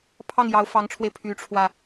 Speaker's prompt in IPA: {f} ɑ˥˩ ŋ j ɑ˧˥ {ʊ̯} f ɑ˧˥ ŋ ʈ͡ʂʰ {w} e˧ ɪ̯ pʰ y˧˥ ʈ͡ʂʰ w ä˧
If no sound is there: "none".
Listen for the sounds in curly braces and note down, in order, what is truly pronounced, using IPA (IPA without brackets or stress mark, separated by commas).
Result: pʰ, ʊ̯, w